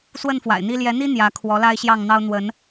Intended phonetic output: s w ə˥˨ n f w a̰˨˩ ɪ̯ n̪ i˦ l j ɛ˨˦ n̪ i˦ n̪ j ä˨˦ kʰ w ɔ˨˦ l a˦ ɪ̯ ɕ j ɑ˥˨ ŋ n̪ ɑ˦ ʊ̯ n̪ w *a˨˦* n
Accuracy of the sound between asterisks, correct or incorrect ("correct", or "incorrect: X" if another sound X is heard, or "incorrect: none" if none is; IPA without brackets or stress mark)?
incorrect: ə˨˦